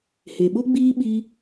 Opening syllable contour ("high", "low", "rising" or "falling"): low